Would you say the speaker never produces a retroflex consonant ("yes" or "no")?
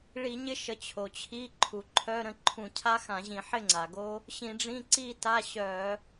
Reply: no